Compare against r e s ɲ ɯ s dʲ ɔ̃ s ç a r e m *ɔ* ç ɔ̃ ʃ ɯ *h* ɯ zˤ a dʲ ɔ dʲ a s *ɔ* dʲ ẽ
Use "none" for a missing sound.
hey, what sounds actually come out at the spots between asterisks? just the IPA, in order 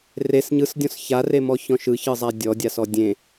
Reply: ɔ, ç, ɔ

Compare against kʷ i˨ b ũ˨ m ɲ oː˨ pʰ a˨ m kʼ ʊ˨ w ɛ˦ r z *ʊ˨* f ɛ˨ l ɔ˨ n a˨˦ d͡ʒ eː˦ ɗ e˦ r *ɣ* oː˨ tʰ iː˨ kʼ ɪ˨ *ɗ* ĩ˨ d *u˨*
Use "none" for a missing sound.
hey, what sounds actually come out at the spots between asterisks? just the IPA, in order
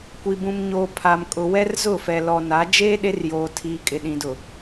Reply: ʊ˦˨, j, ɗ, ʊ˨

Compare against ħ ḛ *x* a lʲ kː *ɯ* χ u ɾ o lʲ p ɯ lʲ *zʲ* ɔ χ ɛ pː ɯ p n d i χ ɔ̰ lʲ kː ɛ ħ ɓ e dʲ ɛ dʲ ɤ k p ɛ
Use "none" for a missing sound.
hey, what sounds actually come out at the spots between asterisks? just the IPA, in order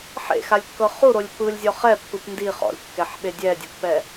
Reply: x, ɤ, zʲ

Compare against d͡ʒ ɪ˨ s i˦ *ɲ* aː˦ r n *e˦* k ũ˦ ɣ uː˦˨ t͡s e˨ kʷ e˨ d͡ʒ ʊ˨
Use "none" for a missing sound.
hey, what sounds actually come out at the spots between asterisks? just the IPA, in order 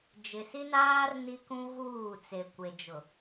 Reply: n, i˦

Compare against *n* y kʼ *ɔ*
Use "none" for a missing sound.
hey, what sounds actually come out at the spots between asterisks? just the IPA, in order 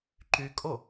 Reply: ǃ, o

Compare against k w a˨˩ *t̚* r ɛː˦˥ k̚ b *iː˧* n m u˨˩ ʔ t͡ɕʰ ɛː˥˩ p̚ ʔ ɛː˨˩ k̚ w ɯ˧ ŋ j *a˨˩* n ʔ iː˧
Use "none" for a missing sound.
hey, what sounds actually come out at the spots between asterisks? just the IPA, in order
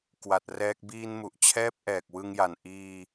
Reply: t̚, iː˧, a˨˩

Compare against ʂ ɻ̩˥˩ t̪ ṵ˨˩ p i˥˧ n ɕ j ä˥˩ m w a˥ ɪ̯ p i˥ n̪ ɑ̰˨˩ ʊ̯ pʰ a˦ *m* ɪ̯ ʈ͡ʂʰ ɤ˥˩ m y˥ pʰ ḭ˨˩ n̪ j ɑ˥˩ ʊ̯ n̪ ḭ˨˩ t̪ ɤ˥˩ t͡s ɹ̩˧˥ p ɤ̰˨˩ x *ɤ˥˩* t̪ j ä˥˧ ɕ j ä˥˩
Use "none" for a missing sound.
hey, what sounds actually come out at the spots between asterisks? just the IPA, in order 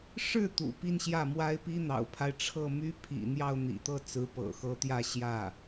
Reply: none, ɤ˧˥

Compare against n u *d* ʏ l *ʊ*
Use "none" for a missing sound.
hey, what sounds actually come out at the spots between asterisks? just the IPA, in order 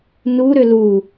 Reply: ɾ, u

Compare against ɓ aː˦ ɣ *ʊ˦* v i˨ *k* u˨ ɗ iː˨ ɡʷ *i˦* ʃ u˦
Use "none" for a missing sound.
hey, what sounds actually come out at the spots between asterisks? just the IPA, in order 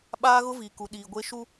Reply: ʊ˦, k, e˦

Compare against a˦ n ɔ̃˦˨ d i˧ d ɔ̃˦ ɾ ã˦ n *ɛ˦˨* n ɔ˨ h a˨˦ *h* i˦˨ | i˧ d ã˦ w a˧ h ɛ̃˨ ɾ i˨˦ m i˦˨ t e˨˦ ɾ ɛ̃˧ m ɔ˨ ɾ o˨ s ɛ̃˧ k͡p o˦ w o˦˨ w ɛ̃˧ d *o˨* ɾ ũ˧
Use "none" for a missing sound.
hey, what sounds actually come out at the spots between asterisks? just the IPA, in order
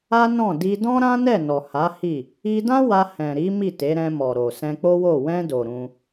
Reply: ɛ˦˨, h, o˨

